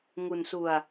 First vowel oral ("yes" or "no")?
yes